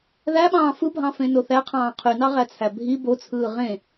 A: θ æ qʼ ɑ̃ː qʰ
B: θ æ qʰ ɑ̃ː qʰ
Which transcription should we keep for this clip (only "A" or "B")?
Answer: B